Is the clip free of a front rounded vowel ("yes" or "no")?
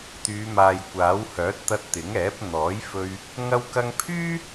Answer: no